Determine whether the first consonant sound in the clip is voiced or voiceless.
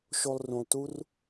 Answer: voiceless